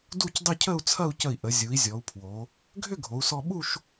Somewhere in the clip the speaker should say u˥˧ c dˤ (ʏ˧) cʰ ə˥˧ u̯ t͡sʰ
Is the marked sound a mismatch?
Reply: yes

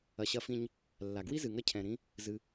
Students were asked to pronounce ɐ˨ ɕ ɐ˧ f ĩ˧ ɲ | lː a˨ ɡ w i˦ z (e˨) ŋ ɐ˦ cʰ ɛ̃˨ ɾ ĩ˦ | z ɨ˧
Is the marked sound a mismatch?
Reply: yes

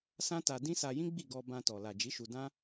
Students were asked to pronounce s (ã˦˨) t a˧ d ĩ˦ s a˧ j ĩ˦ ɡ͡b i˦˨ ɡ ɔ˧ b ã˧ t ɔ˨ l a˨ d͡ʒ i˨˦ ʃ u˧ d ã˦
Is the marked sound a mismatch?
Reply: yes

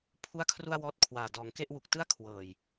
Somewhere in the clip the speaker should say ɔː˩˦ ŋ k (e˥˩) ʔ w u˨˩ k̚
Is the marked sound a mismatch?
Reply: no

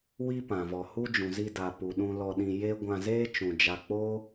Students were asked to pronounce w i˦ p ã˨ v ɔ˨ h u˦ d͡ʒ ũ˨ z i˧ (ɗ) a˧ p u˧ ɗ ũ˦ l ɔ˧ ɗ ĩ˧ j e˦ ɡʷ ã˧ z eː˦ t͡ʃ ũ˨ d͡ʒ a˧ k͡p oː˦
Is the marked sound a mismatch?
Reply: yes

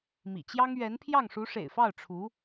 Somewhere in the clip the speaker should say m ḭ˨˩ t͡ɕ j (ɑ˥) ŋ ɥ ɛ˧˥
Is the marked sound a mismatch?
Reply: no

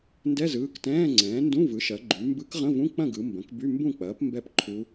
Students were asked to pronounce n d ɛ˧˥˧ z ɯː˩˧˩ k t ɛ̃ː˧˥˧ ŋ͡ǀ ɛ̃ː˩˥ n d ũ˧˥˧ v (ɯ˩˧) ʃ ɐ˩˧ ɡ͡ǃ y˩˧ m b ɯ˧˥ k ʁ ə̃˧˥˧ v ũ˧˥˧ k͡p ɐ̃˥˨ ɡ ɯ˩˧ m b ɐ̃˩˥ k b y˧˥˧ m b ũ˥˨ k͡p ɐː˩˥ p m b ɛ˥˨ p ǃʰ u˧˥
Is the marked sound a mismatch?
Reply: yes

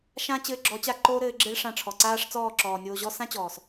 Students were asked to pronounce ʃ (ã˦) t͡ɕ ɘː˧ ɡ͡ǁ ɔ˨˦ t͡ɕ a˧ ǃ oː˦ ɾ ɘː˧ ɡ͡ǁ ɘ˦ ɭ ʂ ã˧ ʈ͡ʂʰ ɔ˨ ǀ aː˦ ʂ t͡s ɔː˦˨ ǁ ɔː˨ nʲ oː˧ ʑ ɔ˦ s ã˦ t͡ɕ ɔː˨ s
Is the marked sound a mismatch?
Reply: no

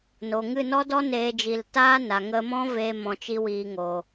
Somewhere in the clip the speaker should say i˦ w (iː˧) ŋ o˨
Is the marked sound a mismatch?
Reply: no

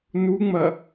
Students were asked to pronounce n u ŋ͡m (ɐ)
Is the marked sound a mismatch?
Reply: no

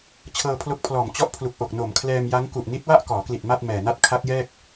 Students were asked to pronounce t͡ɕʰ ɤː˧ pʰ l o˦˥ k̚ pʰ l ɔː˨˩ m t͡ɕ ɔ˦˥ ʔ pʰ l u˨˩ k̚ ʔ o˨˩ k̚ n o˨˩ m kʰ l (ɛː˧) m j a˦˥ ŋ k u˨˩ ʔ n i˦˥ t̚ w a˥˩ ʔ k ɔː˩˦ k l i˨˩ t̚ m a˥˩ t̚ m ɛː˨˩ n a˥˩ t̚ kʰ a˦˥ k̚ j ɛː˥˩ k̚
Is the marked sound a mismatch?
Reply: no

